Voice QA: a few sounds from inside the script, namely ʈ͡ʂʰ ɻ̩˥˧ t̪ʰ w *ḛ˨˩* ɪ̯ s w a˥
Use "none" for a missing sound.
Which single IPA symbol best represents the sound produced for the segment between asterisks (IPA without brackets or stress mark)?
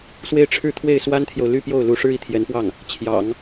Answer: e˥˩